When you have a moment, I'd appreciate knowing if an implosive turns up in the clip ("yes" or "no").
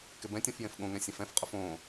yes